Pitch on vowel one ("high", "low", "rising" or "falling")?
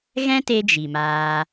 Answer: high